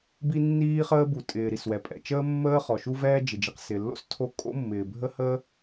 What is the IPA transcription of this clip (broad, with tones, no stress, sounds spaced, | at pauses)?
b i˥ nː iː˥ χ əː˥ b u˩ tʼ ɪː˩ ɾ i˩ s w ɛ˩ pʼ ɛ̰˩ t͡ʃ əː˥ mː əː˥ χ ɔ˩ ʃ u˥ v ɛː˥ d͡ʒ ɪ˩ d͡ʒ i˩ q s ɪ˩ lː o̰˥ s tʰ o˥ kʼ o̰˥ mː ɪː˩ bʱ ə˥ h ə˥